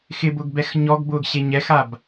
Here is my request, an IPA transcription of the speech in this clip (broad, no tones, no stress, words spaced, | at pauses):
xɪbʊɡ bɛxɲɔɡbʊːɡ ɕeɲɛxab